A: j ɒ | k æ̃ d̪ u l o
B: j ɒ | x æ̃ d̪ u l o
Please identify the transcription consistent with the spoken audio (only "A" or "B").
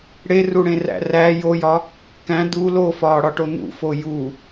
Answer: A